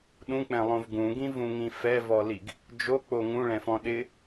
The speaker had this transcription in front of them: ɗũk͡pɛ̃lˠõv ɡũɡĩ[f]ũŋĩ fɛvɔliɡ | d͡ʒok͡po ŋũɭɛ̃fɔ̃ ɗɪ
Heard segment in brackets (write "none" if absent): v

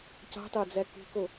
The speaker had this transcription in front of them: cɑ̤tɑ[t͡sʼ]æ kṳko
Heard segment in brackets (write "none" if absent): d͡z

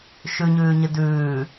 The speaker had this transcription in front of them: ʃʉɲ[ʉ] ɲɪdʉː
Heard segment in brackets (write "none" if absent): ʉː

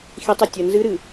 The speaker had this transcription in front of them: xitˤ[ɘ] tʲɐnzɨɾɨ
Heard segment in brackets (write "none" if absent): ɘ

